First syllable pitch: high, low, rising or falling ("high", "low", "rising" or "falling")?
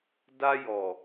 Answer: high